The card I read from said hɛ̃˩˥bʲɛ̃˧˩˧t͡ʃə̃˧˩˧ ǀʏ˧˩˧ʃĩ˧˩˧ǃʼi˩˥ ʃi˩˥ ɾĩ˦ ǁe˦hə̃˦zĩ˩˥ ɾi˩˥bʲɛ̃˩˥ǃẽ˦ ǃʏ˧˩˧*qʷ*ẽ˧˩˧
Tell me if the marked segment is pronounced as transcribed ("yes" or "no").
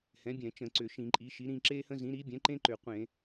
yes